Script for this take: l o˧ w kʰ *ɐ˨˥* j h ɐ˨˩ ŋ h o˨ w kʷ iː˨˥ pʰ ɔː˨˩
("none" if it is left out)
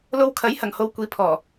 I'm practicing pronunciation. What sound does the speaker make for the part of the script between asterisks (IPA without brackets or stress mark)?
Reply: ɐ˨˥